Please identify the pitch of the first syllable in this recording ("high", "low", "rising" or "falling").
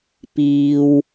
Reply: low